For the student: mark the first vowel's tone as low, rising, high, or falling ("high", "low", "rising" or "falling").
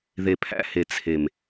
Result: low